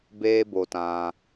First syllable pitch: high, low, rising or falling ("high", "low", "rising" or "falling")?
high